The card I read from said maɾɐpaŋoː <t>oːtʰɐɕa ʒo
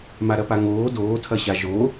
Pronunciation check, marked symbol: incorrect: d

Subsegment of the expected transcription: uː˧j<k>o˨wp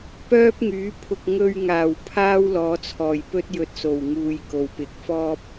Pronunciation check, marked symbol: correct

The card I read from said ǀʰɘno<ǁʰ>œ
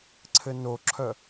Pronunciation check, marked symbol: correct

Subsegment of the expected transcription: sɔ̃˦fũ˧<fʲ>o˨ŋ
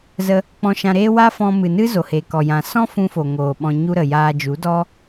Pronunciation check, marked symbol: incorrect: f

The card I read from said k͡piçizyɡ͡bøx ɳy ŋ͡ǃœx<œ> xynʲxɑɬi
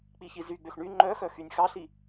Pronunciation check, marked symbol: correct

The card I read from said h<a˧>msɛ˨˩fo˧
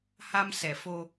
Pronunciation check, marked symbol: correct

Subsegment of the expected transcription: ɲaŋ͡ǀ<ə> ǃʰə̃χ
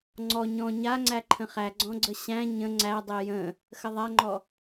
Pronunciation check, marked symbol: incorrect: æ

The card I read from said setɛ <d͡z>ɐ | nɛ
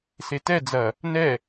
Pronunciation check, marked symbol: correct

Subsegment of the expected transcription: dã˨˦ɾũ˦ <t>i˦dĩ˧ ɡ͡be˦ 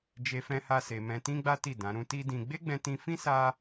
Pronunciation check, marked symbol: correct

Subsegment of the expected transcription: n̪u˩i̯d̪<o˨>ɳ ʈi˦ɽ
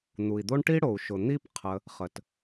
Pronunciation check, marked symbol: incorrect: o˦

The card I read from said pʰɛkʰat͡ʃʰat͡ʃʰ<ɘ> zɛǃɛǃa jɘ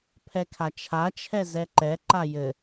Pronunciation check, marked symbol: incorrect: ɛ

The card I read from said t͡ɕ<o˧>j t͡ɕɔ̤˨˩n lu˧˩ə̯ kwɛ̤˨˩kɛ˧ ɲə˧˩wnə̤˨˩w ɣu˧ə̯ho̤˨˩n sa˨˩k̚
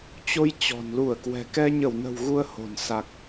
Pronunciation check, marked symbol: correct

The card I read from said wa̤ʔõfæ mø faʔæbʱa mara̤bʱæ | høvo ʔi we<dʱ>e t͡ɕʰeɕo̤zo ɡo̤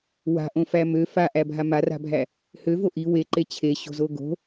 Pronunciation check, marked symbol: incorrect: ǃ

